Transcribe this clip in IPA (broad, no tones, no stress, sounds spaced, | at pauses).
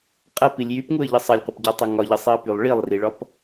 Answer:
qʼ ɐ p i lʲ j y p ŋ u ə̯ ʎ ə sˤ ɐ lʲ qʷ ɐ p ɟ ɒ tˤ ɐ ŋ ɒ ʎ ə sˤ i ə̯ p y lˠ ɭ i lˠ r i ɭ ɒ p